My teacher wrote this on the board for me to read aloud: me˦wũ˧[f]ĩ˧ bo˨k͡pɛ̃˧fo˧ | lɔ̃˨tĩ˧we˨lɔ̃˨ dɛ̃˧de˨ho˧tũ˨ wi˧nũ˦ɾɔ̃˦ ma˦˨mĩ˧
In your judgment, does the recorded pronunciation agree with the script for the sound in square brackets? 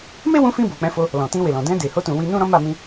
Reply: yes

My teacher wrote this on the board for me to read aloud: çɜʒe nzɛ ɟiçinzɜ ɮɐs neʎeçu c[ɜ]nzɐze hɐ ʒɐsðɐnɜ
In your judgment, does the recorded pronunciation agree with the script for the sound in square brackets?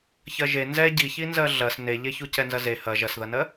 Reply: no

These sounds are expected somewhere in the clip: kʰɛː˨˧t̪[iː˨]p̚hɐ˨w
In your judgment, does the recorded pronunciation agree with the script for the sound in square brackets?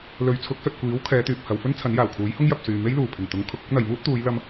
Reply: no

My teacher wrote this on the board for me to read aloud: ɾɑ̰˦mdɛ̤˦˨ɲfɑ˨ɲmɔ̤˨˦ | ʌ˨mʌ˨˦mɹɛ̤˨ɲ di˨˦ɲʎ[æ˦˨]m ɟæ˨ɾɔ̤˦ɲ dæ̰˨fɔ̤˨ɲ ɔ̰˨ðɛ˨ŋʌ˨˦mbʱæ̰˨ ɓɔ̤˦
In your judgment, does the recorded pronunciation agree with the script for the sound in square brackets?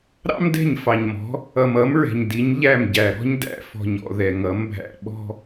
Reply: yes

